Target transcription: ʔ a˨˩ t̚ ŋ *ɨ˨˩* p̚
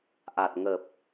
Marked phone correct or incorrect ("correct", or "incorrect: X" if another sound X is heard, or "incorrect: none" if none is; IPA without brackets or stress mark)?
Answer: incorrect: ə˨˩